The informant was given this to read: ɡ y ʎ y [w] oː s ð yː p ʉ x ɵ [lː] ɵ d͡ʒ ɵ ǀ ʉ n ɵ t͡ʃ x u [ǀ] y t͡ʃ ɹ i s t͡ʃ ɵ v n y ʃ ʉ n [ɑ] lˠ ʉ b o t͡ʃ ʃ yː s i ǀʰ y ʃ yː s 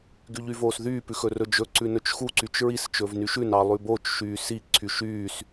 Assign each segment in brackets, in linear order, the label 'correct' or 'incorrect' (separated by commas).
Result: incorrect, incorrect, correct, correct